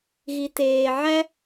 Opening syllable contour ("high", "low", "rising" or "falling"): low